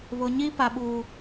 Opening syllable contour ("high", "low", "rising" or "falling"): high